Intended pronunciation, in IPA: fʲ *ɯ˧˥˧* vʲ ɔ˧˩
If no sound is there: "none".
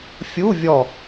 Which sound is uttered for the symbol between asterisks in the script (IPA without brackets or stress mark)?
u˧˥˧